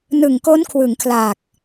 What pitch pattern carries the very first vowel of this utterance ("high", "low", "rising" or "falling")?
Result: low